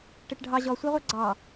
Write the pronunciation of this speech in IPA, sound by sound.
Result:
ʈ e ʈ ɖʱ ɑ ʑ ɔ sʷ ɑ ʁʷ ɑ ɡ͡ǀ ɑ

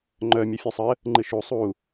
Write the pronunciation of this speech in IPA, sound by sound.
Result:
ŋ͡ǃ œ mʲ œ fʲ u sˤ ə | ŋ͡ǃ ɨ ʃ u sˤ u

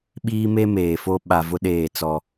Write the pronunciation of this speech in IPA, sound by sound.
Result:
ɓ iː˦ m e˦ m eː˨ f o˦ ɓ a˨ v ʊ˦ ɗ eː˦˨ t͡s ɔ˦

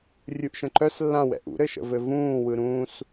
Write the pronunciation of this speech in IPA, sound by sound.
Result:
rʲ u ʔ ʃ ə̃ ǃ œ s lː ã w ɛ̰ ʔ ṵ ɾ ɘ ʃ ə̰ v ɘ v ũː w ɯ ɾ ũː s

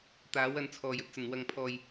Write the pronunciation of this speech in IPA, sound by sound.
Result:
t̪ aː˨˥ w ɐ˧ n t͡sʰ ɔː˨˩ j ɵ˧ t̚ t͡s ɐ˨˩ n w ɐ˨ ŋ pʰ ɔː˨ j

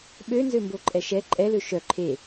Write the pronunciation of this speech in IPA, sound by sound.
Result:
ɓ ø n z ø m b o ǃʼ ɛ ʃ ɛ ǃʼ ɛ l ø ʃ œ ǃʰ e

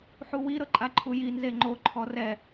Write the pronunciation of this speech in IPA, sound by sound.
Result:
ħ u w i ɾ ɤ ǃʼ a ǃʰ u j i n z e ŋ͡ǃ o ǃʰ ɔ r ɛ

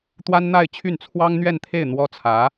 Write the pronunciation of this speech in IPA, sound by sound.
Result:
t̪ w a˥ n n̪ a˥˧ ɪ̯ t͡ɕʰ y˥˩ n t͡sʰ w ɑ˥ ŋ n̪ ɥ ɛ˥˧ n t̪ʰ e˥˩ ɪ̯ n̪ w ɔ˥ t͡sʰ ä˧˥

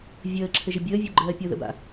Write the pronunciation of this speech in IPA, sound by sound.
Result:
vʲ əː ǁʰ ɘ ʒ ə bʲ əː vʲ u ɡ͡ǃ ɜː pʲ ɤ ð ə̰ b a̰

